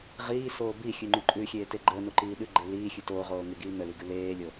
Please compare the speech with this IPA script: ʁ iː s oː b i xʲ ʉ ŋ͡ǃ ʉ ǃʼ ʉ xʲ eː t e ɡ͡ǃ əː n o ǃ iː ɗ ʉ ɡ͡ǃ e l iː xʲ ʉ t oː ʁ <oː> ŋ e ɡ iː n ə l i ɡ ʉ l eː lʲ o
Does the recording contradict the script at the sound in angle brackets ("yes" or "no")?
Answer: no